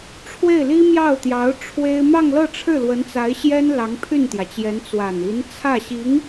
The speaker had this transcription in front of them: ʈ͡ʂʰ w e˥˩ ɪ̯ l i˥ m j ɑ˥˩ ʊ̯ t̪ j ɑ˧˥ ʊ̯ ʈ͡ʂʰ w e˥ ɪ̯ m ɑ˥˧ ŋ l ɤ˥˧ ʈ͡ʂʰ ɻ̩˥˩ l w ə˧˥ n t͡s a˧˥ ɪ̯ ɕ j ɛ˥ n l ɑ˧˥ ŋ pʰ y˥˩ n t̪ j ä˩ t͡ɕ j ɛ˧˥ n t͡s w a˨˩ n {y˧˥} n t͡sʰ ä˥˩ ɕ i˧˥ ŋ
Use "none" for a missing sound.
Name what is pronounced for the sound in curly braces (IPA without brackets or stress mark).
i˧˥